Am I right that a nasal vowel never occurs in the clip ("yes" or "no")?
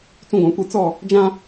no